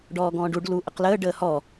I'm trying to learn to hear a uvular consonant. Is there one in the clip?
yes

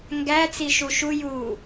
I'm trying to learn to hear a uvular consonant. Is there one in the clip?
no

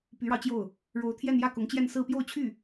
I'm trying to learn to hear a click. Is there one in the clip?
no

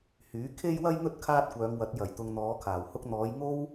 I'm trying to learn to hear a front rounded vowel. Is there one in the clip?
yes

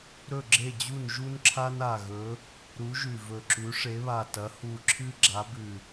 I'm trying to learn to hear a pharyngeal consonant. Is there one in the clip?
no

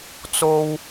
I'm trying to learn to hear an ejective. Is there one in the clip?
no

